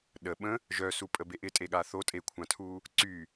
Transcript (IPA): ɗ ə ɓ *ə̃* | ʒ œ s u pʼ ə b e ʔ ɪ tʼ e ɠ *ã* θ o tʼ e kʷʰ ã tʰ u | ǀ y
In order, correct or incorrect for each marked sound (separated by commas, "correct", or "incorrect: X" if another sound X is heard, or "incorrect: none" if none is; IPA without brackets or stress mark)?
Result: correct, incorrect: a